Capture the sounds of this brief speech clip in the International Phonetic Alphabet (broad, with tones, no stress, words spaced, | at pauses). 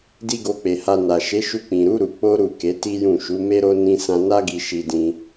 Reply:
di˦ɡo˧k͡pe˨ha˧ na˨ʃe˨˦ʃu˧ k͡pĩ˨ɾu˨˦ ɾu˧ k͡po˦ ɾu˦˨ke˨˦ti˦jũ˦˨ ʃu˨˦me˦ɾo˦ nĩ˦ sã˧na˦ɡi˧ ʃi˧dĩ˧